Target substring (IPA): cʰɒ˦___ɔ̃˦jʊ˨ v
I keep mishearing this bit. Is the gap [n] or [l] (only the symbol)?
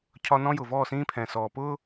n